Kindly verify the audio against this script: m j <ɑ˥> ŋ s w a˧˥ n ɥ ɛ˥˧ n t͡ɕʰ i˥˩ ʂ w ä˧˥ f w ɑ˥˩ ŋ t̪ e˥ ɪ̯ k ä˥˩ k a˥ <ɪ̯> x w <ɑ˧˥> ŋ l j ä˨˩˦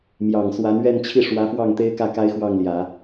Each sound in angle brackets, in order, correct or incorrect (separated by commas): incorrect, correct, incorrect